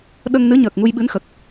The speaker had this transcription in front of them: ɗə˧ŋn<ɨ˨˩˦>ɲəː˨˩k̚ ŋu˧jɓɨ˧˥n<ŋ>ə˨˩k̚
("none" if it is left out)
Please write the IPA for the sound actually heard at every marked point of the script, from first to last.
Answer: ɨ˧˥, x

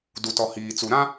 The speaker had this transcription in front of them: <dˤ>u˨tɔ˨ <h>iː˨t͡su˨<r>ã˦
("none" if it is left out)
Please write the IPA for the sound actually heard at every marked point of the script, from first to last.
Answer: d, h, ɾ

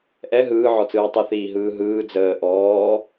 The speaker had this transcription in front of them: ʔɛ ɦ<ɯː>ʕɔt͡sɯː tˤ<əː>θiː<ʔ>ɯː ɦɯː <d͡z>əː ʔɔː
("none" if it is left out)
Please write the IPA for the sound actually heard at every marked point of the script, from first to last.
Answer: ɯː, ə, ɦ, d͡z

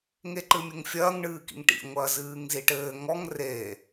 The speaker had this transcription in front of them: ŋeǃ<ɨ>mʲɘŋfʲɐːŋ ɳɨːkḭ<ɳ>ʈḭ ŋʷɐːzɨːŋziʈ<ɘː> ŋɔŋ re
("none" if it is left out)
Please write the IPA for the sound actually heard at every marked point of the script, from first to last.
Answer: ɨ, ŋ, ɘː

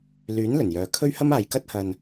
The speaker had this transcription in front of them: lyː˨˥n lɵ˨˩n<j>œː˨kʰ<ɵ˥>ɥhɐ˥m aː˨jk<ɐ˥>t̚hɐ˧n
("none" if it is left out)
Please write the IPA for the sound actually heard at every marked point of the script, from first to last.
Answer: j, ɵ˥, ɐ˥

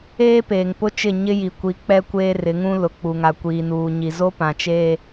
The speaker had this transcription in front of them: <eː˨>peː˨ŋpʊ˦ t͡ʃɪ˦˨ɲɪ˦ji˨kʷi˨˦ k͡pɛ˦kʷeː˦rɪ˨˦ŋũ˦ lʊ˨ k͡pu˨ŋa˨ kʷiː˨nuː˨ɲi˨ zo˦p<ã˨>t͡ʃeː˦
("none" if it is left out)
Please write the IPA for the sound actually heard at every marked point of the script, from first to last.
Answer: eː˦, ã˨

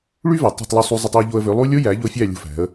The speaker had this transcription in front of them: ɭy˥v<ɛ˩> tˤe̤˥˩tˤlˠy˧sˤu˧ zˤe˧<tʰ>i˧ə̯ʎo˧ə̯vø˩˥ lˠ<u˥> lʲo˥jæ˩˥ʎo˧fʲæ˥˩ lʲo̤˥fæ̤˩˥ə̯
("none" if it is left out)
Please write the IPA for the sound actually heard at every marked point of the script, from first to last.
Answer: æ˩, tˤ, u˥

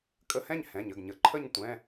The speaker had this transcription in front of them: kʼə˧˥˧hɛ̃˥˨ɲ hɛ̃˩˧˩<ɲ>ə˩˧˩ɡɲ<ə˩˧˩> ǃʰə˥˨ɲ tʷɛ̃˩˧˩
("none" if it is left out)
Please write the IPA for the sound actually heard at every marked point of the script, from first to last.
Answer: ɲ, ə˩˧˩

